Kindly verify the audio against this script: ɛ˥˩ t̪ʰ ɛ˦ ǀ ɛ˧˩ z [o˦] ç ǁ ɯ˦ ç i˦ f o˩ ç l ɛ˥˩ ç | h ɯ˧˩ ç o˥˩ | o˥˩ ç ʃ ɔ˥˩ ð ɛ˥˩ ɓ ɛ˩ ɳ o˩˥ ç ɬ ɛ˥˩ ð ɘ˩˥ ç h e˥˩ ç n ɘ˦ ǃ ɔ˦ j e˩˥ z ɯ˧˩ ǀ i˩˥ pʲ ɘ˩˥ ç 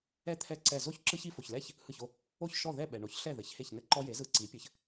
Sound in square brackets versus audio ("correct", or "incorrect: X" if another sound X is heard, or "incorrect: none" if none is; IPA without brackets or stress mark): incorrect: o˥˩